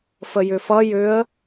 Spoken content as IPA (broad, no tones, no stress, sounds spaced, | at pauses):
f ə j ʏ f ʌ j ʏ ə̯